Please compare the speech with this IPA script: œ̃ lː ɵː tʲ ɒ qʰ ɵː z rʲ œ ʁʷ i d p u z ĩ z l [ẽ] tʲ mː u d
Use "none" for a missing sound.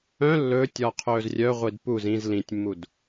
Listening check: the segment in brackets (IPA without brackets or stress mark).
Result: ĩ